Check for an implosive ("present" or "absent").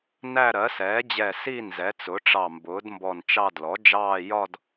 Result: absent